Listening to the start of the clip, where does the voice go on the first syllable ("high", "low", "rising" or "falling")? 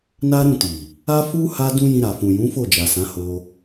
high